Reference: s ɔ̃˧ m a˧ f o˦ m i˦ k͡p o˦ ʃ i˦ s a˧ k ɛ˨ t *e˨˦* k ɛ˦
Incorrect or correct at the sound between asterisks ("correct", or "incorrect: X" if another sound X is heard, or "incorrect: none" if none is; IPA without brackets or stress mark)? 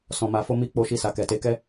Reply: correct